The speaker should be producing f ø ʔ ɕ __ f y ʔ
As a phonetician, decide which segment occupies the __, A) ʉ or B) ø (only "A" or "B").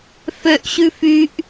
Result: A